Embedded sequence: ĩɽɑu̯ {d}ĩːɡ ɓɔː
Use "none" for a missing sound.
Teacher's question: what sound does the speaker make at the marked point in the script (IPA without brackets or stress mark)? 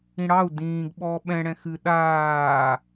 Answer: d